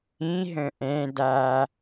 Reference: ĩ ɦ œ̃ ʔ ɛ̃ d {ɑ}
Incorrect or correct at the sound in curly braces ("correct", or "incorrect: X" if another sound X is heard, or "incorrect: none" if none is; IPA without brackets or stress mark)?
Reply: incorrect: a